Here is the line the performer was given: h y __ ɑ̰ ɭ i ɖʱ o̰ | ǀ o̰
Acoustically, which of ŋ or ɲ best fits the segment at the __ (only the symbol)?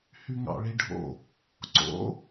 ŋ